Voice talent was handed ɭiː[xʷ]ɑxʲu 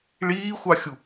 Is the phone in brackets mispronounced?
no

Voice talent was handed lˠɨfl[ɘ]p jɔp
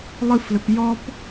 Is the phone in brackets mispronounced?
no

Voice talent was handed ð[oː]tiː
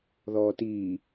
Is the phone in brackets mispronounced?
yes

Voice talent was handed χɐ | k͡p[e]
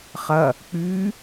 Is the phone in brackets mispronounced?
yes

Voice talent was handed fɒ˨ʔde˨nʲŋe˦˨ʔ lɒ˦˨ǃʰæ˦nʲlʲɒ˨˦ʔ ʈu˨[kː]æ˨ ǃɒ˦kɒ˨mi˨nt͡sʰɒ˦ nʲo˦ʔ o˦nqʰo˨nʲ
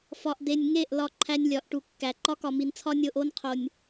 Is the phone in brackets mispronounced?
no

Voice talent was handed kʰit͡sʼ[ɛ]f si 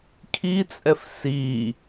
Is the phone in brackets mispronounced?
no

